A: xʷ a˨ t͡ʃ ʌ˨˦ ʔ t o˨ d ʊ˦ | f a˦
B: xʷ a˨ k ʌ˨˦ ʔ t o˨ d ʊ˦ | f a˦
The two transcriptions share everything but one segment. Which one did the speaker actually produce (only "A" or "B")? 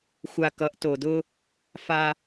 B